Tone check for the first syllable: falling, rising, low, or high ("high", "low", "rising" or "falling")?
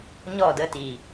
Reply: falling